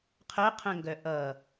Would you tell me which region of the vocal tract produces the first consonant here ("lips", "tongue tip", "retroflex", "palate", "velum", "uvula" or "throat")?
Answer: uvula